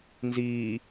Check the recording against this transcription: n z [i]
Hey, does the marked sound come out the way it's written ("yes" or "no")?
no